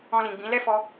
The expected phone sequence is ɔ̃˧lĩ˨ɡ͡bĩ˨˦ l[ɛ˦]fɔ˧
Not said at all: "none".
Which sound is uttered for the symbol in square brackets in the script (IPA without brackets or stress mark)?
ɛ˦